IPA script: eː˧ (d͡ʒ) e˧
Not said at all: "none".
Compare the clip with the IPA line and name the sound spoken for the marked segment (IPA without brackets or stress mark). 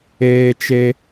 t͡ʃ